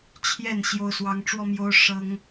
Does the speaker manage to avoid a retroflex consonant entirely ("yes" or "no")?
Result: no